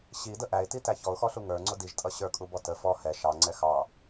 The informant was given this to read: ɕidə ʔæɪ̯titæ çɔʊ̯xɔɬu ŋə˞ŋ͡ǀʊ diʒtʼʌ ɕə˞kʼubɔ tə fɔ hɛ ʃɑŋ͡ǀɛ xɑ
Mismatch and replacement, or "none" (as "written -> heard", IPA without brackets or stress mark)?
none